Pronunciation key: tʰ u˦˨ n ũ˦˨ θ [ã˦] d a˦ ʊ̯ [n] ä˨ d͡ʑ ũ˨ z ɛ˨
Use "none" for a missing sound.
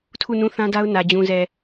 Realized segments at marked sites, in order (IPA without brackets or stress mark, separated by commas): ã˦, n